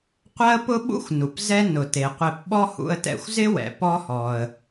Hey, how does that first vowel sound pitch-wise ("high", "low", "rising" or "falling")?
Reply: high